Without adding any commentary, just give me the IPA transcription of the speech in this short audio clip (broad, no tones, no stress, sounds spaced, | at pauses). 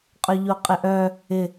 qʼ œ ʎ o qʼ ɪ ʔ œ | ɪ